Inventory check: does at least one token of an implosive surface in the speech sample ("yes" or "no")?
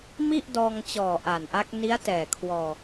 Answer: no